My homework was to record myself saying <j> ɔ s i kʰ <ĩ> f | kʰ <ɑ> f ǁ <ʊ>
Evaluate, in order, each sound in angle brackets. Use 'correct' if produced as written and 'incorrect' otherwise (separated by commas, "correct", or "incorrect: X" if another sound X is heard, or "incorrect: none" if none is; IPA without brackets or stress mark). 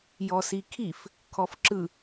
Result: correct, incorrect: i, incorrect: ɔ, incorrect: ɯ